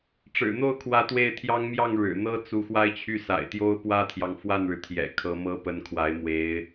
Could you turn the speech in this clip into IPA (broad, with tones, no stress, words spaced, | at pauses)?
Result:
ʈ͡ʂɻ̩˨˩n̪o˥˩ʊ̯kʰwä˧˥ t̪we˥˩ɪ̯t̪ʰjɑ˥ŋ mjɑ˥˩ŋ ɻɻ̩˨˩n̪ɤ˥t͡su˧˥ xwa˥˧ɪ̯t͡ɕʰy˥˩sa̰˨˩ɪ̯t̪jo˥ʊ̯ pwä˥t̪ʰjɑ˨ŋ fwa˥˩nɻɻ̩˩t̪ʰjɛ̰˨˩ kʰɤ˧˥mɤ˥ pə˧˥nkʰwa˧˥ɪ̯ mwe˧˥ɪ̯